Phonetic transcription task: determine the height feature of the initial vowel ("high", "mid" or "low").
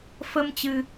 mid